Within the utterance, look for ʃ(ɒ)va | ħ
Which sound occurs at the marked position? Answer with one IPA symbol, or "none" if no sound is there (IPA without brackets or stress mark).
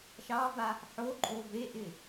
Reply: ɑ